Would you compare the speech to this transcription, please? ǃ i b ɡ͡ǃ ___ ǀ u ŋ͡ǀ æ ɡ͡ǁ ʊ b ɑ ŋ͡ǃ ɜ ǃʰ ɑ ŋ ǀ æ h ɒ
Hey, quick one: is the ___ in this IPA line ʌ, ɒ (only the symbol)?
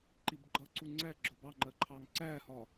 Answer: ʌ